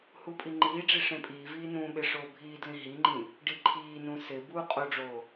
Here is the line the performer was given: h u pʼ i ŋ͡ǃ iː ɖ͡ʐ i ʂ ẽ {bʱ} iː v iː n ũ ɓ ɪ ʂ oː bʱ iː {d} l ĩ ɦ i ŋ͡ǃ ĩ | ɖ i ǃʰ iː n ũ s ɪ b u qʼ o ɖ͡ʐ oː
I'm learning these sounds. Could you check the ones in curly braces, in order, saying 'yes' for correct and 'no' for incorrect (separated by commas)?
no, yes